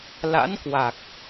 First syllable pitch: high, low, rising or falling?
rising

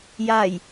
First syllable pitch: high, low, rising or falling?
low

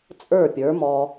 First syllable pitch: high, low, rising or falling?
falling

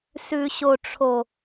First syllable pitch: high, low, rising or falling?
low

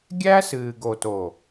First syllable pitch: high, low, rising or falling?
high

